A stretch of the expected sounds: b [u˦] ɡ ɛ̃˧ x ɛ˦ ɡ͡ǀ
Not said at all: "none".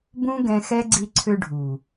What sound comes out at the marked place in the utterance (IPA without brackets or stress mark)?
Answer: ũ˦